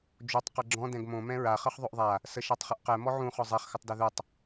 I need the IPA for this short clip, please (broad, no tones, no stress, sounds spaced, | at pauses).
d͡ʒ o tˤ q ɛ ɡ͡ǁ ɔ̃ d ɛ̃ ɡ m õ m ɛ̃ ɹ a χ ɤ χ ðˤ o ʔ ðˤ a | s ə ʃ ɤ tˤ χ ə ʔ q ɛ m ɔ ʕ ũ χ ɔ zˤ ɛ χ x ə tˤ d ɛ ð u tˤ